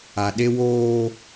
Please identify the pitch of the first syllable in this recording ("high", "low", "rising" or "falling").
low